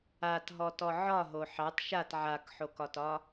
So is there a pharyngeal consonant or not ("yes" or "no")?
yes